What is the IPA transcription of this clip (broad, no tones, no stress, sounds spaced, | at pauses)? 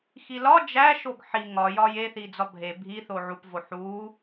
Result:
x i l ɒ d͡ʒ æ ʃ o ɡ ħ i ŋ ɒ j ɒ j e θ i d͡z ɒ bʱ e bʱ i θ o ʕ u p v o ħ u